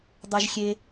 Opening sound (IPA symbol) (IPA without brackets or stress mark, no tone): dˤ